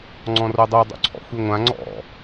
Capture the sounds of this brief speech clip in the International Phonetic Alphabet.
ŋ͡ǀ ɔ̃ r o dˤ o dˤ o̰ ǀʰ ɔ̰ xʷ i ŋʷ ã ŋ͡ǀ ɔ̰

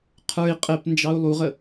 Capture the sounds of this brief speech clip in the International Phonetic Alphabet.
qʰ ə˞ i̯ qʼ ɛ p n d͡ʒ ɑ u̯ lˠ u ʁ ə

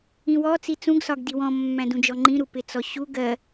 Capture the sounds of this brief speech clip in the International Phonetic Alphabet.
ĩ w ɔ t͡s i t͡s ũ ɡ s ɒ ɡ d i w ɔ̃ mː æ̃ d ũ d͡ʒ ɔ ŋ͡ǃ ĩ ɾ u p ɪ t͡s ɔ ɕ u ɡ ɜ

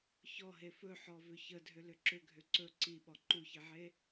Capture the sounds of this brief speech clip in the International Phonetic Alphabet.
ç ɔ ɦ e f ɵ ħ ɔ v ʏ ç ə dʱ ʏ l ʏ ǁ ʏ ɡʱ ʏ ǀ ɵ ǀ i ɓ ɔ ǃ u ç i ʕ e

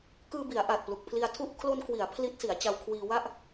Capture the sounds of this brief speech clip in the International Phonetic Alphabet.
k ɯː˧ b i˩˦ a̯ ʔ a˨˩ t̚ p l u˨˩ k̚ pʰ l i˧ a̯ tʰ u˥˩ ʔ kʰ l o˧ n k w i˩˦ a̯ pʰ l i˦˥ t̚ s i˩˦ a̯ t͡ɕ a˧ w kʰ w iː˧ w a˥˩ ʔ

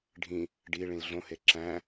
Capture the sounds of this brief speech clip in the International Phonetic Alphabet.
ɖʱ ĩ | ɖ i ɭ ĩ l ɮ õ h e ǁ æ̃

